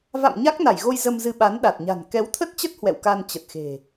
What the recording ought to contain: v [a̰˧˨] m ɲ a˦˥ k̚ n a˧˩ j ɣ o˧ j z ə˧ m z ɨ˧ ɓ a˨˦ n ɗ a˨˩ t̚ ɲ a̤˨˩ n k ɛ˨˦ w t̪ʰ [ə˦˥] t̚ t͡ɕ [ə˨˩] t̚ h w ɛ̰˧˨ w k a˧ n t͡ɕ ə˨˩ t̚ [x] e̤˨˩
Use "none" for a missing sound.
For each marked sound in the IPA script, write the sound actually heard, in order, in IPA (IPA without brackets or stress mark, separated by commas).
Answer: a̰˧˨, ə˦˥, ə˦˥, x